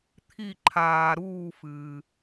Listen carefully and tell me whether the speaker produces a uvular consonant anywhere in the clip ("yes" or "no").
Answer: no